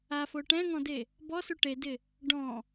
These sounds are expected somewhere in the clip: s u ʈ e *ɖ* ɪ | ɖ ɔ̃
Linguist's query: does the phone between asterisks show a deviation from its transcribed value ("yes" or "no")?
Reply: yes